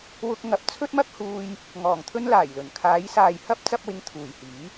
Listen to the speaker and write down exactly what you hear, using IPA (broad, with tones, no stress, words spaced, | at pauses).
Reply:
wʊ˧k̚ ŋɐ˨p̚t͡sʰɵ˥t̚mɐ˥k̚huː˧j | ŋɔː˨˩ŋt̪ʰɵ˥nlaː˨˩jlɵ˨˩n kʰaː˨˧jsaː˨j hɐ˥p̚ t͡sɐ˥p̚wɪ˧ŋt̪ʰuː˨˩jhiː˨˥